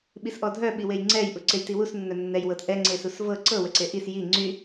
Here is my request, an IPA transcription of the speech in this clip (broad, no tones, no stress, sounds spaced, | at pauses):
ɓ i s ʔ ɔ dʱ œ ɓ i w e j ŋ͡ǀ ɛ j ʔ u ǀ e j t i w u s nː œ nː ɛ j w ɤ t ʔ ɛ ŋ͡ǀ e s u s v ɤ ǀ ɤ w ə ǀ e ʔ i s j i ŋ͡ǀ y